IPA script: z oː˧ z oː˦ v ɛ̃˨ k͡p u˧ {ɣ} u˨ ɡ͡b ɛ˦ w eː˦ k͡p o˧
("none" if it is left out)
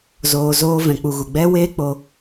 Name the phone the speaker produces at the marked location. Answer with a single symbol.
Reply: ɣ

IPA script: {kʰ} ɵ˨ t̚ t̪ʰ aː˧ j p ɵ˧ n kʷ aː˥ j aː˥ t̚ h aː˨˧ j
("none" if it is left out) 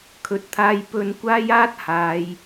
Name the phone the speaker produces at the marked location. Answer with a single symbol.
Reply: kʰ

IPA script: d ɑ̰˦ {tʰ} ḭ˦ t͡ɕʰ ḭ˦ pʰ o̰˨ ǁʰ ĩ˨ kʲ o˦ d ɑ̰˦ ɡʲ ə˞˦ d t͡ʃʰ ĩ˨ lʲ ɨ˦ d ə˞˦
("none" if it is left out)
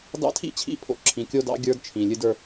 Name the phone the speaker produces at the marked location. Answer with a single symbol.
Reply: tʰ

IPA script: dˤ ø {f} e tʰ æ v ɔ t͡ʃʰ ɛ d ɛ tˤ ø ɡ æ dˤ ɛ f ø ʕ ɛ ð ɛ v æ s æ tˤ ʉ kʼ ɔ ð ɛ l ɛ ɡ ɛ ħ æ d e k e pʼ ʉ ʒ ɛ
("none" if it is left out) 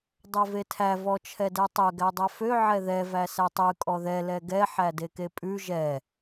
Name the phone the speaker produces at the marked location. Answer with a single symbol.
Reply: v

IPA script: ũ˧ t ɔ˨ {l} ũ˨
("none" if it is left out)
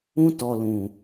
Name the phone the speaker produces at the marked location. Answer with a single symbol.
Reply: l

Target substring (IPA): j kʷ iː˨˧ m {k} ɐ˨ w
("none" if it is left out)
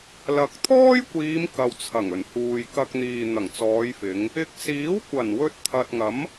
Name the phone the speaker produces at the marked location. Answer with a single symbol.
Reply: k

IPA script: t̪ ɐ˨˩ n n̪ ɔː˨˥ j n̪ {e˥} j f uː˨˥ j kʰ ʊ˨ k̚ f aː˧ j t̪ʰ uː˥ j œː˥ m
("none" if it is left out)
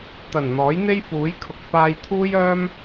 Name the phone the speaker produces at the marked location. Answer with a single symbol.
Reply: e˥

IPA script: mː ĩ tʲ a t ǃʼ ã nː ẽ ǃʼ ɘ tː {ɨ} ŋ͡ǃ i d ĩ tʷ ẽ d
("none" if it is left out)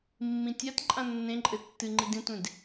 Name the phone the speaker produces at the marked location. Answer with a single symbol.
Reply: ɨ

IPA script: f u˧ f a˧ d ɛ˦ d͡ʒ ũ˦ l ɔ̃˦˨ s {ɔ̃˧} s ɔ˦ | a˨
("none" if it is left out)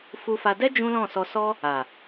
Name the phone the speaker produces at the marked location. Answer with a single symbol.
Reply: ɔ˧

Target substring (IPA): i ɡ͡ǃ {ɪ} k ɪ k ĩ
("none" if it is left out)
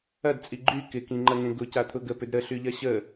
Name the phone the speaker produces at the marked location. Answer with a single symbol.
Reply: y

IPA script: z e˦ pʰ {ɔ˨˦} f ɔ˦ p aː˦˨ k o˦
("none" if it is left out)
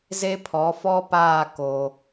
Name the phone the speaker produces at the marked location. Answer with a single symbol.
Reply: ɔ˨˦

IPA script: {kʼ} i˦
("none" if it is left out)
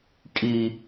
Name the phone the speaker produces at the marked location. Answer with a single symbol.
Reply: kʼ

